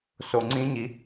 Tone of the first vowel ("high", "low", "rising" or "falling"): low